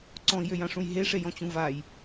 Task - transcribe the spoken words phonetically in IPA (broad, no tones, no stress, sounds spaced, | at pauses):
ǀ ɔ̃ i̯ j ø j ã ʂ ũ j ɦ e ʂ e j ɔ̃ t͡ɕ ũ v a j